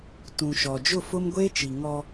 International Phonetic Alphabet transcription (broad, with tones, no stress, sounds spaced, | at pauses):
t ũ˨ ʃ ɔ˨ d͡ʒ ʊ˦˨ f ʊ˦ m ɡʷ eː˦ t͡ʃ i˨ ŋ ɔ˦